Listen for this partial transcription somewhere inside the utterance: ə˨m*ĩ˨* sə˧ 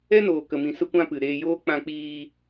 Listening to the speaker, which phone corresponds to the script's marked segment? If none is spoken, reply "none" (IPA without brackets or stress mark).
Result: ĩ˨